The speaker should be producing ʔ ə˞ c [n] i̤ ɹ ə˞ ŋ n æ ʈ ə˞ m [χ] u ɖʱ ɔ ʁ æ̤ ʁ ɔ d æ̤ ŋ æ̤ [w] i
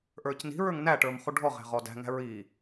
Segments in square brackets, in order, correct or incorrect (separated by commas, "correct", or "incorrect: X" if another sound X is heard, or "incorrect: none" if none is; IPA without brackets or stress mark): correct, correct, incorrect: ɹ